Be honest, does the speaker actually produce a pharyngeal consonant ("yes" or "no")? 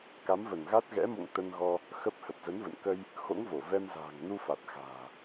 no